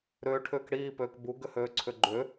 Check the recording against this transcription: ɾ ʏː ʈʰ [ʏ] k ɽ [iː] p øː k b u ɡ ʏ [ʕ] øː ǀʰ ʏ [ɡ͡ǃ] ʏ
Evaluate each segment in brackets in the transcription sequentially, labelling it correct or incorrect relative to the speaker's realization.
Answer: incorrect: ʏː, correct, incorrect: h, correct

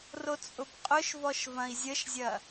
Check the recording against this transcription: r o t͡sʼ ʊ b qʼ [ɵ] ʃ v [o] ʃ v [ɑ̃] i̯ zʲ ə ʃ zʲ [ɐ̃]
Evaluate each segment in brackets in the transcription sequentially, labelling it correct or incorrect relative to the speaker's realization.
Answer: incorrect: ʊ, incorrect: ɔ, incorrect: ɐ̃, incorrect: ɐ

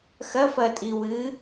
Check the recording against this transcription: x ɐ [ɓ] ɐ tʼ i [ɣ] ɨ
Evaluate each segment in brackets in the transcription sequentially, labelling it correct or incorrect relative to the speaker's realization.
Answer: incorrect: f, incorrect: w

